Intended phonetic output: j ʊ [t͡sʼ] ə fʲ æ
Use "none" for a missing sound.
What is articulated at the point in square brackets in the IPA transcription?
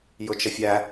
t͡ʃ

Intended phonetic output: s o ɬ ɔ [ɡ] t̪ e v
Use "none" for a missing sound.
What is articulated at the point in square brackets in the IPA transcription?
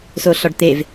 ɖ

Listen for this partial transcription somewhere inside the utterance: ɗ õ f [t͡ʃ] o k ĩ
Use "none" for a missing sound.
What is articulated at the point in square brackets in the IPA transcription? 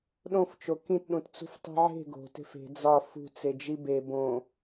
t͡ʃ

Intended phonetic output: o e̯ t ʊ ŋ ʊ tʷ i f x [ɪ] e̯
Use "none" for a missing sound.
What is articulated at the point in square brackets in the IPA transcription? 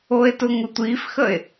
ə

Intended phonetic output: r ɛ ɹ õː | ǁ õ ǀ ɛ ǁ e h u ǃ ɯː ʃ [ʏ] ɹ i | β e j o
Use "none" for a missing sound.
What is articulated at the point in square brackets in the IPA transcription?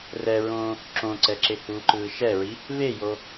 ɛ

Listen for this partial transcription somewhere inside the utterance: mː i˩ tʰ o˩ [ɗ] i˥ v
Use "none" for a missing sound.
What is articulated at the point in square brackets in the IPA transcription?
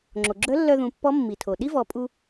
ɗ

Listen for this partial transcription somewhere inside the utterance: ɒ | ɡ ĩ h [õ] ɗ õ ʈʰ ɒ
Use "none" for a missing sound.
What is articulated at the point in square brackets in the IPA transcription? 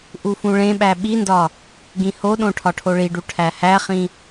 o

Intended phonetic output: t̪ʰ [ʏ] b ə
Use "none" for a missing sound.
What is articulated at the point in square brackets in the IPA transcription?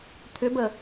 ʏ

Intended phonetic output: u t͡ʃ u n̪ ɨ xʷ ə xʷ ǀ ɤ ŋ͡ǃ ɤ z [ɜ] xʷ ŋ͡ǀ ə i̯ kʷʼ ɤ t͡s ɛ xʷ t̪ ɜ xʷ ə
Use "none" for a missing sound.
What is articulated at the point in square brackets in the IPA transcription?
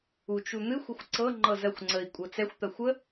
ɜ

